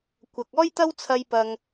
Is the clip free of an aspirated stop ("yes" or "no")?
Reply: no